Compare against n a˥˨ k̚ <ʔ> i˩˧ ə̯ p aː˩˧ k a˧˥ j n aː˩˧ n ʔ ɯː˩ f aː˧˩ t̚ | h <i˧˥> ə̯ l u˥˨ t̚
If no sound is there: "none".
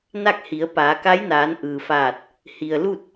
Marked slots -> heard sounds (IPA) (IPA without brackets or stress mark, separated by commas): h, i˩